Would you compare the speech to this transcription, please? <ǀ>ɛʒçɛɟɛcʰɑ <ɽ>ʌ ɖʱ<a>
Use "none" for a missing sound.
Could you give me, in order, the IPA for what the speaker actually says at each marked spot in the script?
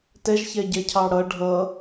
t, ɽ, ʌ

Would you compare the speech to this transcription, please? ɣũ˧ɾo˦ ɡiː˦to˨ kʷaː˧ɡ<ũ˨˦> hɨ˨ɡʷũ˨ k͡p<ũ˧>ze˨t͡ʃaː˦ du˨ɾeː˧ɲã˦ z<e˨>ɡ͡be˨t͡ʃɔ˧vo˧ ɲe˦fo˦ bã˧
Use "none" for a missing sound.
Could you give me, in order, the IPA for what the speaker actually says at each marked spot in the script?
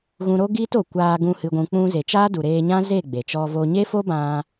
ũ˧, ũ˧, e˦˨

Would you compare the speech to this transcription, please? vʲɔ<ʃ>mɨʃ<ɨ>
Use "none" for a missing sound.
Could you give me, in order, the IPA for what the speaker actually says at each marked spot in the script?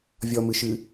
none, ɨ

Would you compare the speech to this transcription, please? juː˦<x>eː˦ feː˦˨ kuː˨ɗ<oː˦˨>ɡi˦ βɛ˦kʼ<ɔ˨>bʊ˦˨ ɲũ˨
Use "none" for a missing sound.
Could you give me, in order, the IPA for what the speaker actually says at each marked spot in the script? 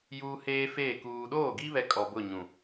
h, oː˦˨, ɔ˨

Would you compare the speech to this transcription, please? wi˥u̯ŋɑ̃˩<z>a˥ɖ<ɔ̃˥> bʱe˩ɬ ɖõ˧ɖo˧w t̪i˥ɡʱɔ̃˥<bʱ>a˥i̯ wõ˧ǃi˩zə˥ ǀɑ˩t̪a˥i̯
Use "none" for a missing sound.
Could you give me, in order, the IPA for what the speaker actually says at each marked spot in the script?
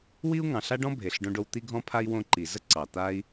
ɬ, ɔ̃˥, pʰ

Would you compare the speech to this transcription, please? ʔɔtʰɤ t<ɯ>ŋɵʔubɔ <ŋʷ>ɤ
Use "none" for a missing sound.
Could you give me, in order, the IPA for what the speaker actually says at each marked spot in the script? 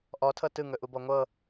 ɯ, ŋʷ

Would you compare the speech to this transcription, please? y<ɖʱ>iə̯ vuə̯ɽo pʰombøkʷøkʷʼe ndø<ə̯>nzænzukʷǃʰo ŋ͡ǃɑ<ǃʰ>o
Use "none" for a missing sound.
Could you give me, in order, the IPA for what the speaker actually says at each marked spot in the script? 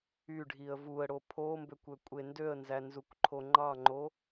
ɖʱ, ə̯, ŋ͡ǃ

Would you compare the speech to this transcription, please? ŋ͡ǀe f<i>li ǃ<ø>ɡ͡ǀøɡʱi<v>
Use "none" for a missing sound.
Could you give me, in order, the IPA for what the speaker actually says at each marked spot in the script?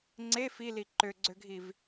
i, ø, v

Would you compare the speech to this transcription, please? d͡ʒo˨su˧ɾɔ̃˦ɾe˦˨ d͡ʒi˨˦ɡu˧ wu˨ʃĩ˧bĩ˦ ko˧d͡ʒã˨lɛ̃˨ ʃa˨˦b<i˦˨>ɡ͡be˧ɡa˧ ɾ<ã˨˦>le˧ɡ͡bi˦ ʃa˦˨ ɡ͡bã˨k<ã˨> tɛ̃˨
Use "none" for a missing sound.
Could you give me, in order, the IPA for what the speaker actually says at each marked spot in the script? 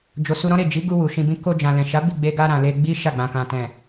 i˦˨, ã˨, ã˨

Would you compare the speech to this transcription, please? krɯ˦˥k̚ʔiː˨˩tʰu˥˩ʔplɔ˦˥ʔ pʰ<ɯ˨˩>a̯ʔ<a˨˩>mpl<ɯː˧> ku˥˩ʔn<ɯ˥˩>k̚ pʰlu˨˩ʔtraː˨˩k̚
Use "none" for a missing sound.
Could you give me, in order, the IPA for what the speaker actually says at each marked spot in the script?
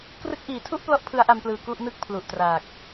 ɯ˦˥, a˧, ɯː˨˩, ɯ˥˩

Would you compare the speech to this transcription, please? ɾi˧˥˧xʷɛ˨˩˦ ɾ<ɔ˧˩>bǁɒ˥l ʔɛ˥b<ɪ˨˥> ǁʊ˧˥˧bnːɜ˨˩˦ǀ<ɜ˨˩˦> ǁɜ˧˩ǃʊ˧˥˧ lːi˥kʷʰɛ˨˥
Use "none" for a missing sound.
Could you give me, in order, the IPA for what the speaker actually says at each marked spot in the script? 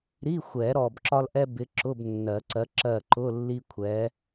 ɔ˧˩, ɪ˨˥, ɜ˨˥

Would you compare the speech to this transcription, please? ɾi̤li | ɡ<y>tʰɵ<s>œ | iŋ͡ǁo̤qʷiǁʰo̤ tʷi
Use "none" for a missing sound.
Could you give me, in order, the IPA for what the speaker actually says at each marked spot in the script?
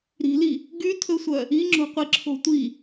y, sʷ

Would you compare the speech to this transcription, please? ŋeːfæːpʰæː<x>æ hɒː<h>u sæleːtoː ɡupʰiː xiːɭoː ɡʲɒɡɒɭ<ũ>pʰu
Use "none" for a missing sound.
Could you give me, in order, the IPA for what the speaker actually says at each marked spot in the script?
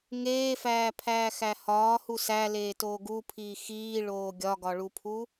x, h, u

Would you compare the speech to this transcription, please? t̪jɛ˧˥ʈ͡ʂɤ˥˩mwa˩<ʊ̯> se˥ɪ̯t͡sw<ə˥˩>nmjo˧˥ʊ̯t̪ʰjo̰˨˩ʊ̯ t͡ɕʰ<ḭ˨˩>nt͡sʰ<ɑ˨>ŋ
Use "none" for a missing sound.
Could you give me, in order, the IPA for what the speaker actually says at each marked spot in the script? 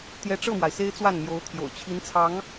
ɪ̯, a˥˩, i˧˥, ɑ˧˥

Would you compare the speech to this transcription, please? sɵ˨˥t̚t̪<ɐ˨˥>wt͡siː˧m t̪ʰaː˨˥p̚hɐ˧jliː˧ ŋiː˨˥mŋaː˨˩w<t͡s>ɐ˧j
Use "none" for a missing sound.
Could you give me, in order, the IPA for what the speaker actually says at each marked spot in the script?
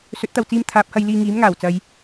ɐ˨, t͡s

